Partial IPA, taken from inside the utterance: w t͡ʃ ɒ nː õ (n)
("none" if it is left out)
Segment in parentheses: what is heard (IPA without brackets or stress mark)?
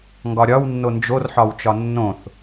θ